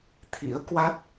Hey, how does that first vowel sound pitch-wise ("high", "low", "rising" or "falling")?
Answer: rising